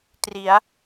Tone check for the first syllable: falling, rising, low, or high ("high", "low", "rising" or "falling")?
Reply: rising